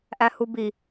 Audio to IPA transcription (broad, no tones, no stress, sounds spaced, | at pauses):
ʔ æ h u b i